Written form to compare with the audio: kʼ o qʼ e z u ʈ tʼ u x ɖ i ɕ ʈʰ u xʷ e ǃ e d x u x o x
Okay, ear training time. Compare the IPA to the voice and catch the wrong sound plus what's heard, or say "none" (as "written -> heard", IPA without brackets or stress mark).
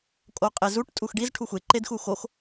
ɕ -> z